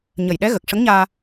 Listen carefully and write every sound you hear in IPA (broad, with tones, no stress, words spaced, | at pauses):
ɲə˨˩jɗɛ˧˥ ɣə˨˩k̚ʂə˧˥ŋɲaː˧